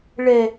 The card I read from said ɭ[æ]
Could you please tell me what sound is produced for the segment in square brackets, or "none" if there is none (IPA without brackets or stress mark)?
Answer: ɛ